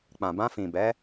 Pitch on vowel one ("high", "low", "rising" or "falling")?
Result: low